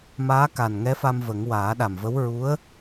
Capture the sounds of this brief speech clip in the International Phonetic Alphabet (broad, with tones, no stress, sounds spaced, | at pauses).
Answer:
m aː˧˥ k a˨˩ n ŋ ɛ˧˥ f a˧ m v ə˨˩˦ ŋ w aː˨˩˦ ɗ a˨˩ m v ə˧˥ w ɹ u˧˥ ə̯